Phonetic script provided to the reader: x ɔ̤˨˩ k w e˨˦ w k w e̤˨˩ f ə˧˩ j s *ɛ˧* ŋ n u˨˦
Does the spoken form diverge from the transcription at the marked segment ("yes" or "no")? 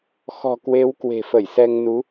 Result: no